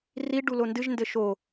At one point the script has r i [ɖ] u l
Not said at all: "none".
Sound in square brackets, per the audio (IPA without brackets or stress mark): ɖ